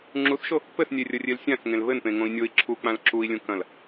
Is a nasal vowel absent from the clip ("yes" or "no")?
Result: no